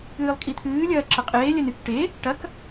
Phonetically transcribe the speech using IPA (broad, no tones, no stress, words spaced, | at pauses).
ɨːlˠkʼit̪ʰɨːlʲɐː ǁɐqʼeːlʲɐn ɨk ʈe | ʈɐk